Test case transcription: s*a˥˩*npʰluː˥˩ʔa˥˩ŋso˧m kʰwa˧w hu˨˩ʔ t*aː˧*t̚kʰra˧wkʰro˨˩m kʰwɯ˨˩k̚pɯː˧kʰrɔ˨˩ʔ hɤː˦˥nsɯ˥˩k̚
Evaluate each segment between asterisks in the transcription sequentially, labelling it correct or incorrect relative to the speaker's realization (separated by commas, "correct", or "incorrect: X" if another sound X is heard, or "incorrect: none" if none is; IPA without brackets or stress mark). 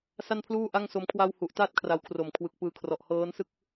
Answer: correct, incorrect: aː˥˩